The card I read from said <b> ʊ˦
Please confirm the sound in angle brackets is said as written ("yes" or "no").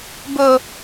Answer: yes